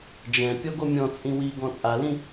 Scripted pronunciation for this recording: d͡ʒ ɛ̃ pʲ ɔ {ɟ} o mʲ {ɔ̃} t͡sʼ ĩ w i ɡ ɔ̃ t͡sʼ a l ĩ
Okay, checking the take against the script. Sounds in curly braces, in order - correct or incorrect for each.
incorrect, correct

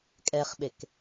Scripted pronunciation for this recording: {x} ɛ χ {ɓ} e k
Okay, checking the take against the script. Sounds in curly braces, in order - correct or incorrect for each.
incorrect, correct

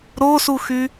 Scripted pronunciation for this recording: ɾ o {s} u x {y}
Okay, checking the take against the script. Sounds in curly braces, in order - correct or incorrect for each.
correct, correct

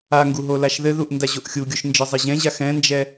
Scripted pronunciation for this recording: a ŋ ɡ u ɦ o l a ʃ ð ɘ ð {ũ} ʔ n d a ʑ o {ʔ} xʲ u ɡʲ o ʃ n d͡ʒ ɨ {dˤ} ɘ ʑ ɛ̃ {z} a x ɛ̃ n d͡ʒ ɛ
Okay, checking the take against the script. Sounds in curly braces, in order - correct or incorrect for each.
incorrect, correct, incorrect, incorrect

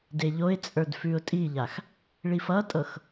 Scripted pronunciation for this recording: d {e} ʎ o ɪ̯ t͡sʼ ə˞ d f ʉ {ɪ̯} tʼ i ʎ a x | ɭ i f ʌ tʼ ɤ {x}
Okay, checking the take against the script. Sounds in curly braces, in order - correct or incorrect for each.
correct, incorrect, correct

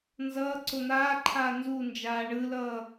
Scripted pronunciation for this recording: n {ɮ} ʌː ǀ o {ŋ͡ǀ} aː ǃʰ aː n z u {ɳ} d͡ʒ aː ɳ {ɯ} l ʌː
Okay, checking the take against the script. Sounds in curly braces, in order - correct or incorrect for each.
incorrect, incorrect, incorrect, correct

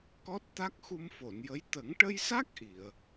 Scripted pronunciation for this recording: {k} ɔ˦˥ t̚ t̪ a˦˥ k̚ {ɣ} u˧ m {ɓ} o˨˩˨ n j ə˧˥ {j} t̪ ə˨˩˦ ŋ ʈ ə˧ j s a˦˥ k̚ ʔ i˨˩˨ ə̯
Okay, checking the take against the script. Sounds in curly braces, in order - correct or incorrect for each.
correct, incorrect, incorrect, correct

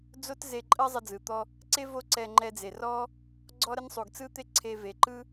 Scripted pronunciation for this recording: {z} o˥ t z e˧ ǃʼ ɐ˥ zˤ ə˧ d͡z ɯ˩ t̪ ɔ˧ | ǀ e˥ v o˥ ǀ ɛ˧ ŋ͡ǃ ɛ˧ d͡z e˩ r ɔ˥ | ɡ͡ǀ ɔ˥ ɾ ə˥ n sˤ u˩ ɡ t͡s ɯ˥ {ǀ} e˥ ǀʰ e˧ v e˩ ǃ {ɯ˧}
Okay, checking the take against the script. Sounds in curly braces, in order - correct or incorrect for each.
incorrect, incorrect, incorrect

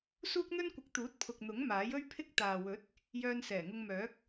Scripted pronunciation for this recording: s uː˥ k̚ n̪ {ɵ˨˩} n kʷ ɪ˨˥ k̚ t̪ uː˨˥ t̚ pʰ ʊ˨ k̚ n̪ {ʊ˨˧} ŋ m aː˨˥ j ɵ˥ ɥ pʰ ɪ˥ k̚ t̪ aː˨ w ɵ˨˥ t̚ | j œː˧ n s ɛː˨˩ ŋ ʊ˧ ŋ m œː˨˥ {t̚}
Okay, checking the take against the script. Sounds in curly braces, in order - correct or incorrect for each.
incorrect, incorrect, incorrect

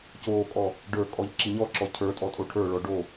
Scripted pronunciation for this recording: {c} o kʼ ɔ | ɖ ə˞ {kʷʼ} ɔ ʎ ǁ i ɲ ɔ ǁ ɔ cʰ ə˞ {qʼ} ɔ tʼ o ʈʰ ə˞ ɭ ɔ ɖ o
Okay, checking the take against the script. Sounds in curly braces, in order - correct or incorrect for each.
correct, incorrect, incorrect

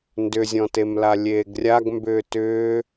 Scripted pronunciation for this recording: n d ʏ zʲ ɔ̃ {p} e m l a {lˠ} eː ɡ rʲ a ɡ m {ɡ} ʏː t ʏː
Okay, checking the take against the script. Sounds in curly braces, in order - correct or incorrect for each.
incorrect, incorrect, incorrect

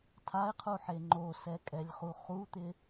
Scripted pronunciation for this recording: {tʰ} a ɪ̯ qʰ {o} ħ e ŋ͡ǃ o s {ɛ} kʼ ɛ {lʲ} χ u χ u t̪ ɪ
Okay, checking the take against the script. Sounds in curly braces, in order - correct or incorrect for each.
correct, incorrect, correct, correct

